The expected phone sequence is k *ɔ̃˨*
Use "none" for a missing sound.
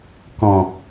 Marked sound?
ɔ̃˨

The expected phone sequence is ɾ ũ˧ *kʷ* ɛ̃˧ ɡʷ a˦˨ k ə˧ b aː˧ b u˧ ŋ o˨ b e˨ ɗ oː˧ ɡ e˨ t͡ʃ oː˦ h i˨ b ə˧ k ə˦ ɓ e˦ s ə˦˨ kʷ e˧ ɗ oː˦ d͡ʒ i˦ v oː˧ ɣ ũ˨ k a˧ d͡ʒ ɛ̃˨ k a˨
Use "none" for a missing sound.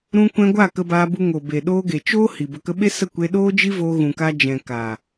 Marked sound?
kʷ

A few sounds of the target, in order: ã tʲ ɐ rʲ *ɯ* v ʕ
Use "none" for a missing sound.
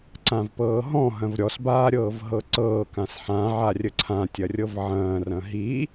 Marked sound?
ɤ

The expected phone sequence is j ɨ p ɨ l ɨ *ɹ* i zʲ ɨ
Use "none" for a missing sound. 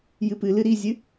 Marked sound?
ɾ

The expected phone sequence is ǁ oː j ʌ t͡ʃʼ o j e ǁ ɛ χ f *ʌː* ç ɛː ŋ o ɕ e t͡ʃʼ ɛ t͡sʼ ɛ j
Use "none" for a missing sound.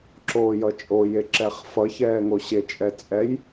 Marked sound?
ʌ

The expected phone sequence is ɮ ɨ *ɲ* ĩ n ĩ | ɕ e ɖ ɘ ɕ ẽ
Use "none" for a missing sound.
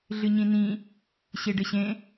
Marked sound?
ɲ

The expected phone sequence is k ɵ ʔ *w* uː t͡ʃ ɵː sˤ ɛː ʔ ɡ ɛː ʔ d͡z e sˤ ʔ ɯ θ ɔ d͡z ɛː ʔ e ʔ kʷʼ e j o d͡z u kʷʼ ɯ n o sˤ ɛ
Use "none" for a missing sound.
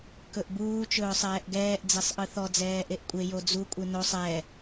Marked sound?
b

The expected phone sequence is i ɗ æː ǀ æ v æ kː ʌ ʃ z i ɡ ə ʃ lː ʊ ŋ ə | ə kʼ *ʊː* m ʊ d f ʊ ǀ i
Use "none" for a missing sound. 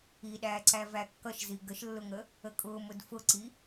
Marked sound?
ʊː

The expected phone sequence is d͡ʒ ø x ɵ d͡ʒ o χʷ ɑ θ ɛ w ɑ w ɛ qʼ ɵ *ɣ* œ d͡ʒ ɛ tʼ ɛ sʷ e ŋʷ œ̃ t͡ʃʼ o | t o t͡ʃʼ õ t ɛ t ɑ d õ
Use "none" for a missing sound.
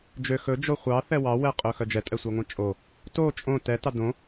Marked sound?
x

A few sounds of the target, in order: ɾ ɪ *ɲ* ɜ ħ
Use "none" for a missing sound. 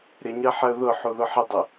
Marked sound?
ɲ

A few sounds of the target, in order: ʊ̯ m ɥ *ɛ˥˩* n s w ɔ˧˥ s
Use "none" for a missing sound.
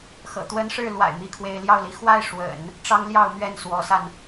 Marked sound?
ɛ˥˩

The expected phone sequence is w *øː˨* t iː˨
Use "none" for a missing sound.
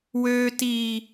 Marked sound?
øː˨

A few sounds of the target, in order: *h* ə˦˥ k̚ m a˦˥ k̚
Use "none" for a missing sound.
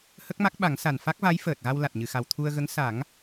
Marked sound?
h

